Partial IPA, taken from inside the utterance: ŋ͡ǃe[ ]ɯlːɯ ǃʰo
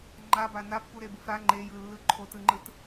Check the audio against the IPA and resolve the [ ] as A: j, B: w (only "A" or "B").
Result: A